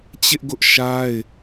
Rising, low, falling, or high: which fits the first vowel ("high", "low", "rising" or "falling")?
high